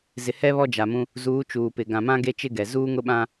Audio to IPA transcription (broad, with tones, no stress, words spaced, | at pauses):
zɪ˨hɛ˦ βɔ˦d͡ʒa˨mũ˦ | zuː˨˦t͡ʃuː˨ pɪ˨ ɡã˨mã˦ ɡe˦t͡ʃɪ˦ɡɛ˨ zuː˦ŋʊ˦ɓã˦